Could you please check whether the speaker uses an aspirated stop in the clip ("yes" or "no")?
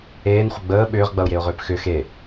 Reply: no